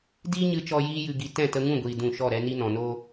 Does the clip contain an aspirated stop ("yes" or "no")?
no